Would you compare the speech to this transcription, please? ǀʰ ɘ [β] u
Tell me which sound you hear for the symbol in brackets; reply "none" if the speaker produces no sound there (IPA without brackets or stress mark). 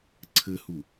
h